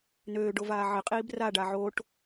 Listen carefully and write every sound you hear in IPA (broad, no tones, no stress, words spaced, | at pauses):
nøːɖovaː ʕɪqʼiːb raɖa ʕoʈ